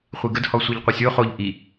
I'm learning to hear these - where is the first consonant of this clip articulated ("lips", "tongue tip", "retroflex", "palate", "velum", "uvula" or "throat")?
uvula